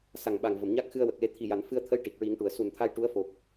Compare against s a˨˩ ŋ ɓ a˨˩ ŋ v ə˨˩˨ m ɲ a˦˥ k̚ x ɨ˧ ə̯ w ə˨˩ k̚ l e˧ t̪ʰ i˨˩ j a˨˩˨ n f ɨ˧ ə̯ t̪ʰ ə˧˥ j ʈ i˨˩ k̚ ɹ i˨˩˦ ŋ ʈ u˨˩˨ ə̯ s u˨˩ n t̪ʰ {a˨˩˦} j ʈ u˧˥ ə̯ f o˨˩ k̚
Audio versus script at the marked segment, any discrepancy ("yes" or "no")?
yes